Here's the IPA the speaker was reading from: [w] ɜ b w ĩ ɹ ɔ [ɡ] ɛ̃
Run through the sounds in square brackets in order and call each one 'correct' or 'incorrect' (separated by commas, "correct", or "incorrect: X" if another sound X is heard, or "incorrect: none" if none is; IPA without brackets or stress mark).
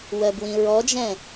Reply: correct, incorrect: d͡ʒ